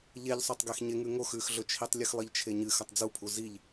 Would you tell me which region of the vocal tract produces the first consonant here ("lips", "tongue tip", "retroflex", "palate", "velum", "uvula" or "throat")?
palate